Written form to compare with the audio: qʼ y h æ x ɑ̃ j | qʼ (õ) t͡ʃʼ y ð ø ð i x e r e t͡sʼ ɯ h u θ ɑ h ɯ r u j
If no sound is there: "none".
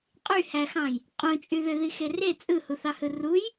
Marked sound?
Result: õ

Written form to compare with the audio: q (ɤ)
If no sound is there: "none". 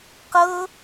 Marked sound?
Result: ɤ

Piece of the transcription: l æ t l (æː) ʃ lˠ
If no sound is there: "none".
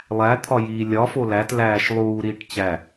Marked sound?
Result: æː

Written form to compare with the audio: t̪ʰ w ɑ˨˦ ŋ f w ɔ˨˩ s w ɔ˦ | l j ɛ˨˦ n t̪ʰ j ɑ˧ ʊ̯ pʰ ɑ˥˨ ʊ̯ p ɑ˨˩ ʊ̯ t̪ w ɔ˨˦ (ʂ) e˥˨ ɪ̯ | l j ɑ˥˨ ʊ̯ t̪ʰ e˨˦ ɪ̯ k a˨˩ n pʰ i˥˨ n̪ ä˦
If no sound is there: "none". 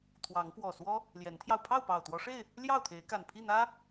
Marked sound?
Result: ʂ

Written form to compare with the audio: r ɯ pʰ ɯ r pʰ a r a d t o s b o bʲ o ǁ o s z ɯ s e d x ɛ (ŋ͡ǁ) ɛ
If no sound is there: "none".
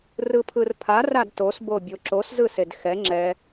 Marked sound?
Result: ŋ͡ǁ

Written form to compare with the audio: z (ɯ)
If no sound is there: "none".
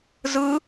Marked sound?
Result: ɯ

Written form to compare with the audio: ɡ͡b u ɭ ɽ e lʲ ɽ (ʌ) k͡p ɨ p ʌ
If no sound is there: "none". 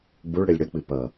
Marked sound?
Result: ʌ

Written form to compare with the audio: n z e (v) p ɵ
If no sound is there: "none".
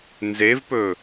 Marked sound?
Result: v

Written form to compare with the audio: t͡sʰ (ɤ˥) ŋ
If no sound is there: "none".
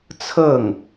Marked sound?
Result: ɤ˥˩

